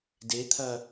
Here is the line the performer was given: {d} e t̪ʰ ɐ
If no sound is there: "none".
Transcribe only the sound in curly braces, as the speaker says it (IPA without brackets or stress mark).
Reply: d